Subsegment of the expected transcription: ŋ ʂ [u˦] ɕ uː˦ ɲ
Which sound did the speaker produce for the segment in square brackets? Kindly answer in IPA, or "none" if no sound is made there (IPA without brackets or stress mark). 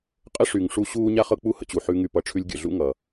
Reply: u˧